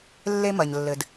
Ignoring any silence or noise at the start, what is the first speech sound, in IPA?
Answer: lː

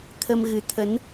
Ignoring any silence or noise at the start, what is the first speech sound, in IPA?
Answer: t̪ʰ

